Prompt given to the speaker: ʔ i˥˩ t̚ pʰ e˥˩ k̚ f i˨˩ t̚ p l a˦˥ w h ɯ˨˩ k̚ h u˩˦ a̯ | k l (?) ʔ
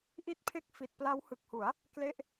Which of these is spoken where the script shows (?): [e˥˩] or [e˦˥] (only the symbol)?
e˥˩